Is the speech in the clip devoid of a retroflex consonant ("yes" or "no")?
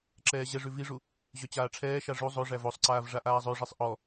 no